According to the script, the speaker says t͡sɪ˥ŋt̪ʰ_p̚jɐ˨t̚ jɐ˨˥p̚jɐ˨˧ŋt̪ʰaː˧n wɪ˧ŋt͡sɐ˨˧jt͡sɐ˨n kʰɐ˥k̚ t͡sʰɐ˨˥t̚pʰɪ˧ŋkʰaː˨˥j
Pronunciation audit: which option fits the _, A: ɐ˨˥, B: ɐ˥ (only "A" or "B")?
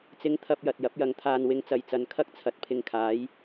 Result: B